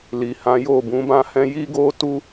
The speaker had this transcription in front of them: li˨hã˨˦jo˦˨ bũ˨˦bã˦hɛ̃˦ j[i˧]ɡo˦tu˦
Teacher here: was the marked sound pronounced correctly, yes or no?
no